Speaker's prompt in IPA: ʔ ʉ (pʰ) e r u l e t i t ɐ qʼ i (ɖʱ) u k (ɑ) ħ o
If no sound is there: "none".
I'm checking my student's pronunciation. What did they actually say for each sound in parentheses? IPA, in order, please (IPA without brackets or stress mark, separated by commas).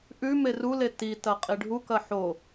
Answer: m, ɖʱ, ɐ